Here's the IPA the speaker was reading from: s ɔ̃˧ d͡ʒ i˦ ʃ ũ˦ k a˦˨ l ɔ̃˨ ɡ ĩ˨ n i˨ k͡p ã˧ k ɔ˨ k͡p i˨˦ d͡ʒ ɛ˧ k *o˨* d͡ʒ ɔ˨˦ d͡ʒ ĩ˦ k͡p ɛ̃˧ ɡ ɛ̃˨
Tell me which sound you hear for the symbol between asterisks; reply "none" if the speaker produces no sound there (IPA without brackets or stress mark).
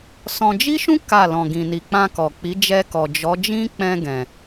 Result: ɔ˨